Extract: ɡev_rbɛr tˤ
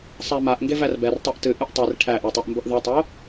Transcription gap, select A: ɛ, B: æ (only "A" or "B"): B